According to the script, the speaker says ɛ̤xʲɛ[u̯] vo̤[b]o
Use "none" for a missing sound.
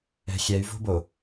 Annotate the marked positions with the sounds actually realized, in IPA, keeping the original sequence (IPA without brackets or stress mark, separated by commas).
y̯, b